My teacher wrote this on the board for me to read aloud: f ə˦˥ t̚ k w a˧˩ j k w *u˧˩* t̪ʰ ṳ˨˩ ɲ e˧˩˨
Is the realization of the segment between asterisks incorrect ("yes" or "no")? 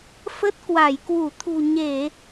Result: no